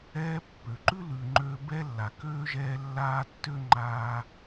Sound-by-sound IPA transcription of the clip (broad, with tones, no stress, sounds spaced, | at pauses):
ɛː˦ pː ø˩ ǃ ʉ˥ l ʉ˨ ŋ͡ǃ ø˦ b ɛ˥ lː a˩ k øː˥ ʒ ɛː˦ lː aː˥ tː ø˥ ŋ͡ǃ aː˦